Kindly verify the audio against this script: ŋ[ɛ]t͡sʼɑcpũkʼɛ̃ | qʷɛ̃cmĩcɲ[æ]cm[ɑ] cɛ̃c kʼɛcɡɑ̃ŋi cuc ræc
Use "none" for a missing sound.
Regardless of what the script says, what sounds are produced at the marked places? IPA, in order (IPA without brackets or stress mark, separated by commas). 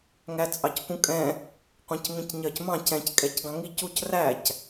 æ, ɜ, ɑ̃